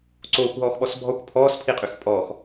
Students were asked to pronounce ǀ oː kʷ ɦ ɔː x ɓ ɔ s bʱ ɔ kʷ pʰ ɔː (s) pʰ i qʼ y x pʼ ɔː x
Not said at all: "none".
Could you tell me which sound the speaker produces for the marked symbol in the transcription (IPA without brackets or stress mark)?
s